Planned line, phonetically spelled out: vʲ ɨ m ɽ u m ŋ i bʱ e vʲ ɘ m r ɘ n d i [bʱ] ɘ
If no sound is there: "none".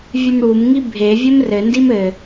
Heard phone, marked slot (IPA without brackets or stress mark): m